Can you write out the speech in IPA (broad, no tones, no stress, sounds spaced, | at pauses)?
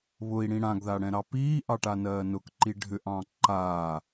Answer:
β ʊ i̯ ɽ ĩ ɽ ã ɡ ð a ɽ ɛ̃ ɾ ɑ p iː ʔ ɑ ʈ a n ɜː n ʊ k ǃ i ɖʱ ʏ ʔ ɑ̃ ǃ a